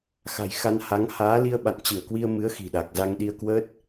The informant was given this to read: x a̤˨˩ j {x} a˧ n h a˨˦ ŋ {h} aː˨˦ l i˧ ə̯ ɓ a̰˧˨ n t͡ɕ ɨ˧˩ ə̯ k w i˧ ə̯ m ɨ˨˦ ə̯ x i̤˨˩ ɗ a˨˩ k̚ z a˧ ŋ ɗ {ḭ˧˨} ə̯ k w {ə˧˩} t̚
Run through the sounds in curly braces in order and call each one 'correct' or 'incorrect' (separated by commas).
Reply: correct, correct, incorrect, incorrect